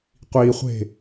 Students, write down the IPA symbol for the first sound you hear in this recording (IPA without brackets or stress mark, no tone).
qʷ